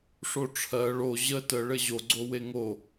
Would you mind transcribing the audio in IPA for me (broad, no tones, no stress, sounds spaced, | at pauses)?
ʂ o ʈ͡ʂʰ ɜ ɭ o ʑ ə t ə ɭ ɘ ʑ o ɡ͡ǀ o w e ŋ o